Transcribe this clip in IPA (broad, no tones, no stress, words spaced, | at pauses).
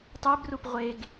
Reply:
tˤebrup ʁʷeɡ